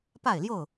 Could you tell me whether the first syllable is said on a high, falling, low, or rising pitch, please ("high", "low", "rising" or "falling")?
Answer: falling